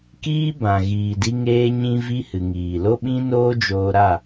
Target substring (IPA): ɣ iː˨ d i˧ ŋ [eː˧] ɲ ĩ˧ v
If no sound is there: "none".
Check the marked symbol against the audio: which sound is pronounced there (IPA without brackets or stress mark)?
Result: eː˧